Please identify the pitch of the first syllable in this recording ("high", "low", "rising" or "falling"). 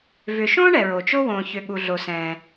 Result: low